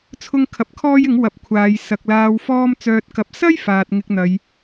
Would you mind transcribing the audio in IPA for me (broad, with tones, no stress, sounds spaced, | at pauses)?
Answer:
t͡sʰ ʊ˥ ŋ kʰ ɐ˧ p̚ kʰ ɔː˥ j ɪ˨˥ ŋ w ɐ˨˥ p̚ kʷʰ aː˨˧ j s ɐ˨ k̚ l aː˧ w f ɔː˥ m t͡s œː˧ t̚ k ɐ˧ p̚ s ɐ˥ j f aː˨ t̚ ŋ ɪ˧ k̚ n̪ ɐ˨˧ j